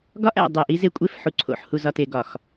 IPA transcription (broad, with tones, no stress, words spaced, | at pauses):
ɡɒ˦ʔæ̰˨dˤe˨ʔ i˦ze˦kʷʼe˦f ħu˨ǀʰo̰˨ħhu˨ zɒ˨te˨ ɡɒ˨x